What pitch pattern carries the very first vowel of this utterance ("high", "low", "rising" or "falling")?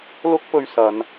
high